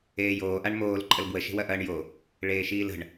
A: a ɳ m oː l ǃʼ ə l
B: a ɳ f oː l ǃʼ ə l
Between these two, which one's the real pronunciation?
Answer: A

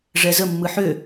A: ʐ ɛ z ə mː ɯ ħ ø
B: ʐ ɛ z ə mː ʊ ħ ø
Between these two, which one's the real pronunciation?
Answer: A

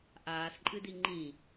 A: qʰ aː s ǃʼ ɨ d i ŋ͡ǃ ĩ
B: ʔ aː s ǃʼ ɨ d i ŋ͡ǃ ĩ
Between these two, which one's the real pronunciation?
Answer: B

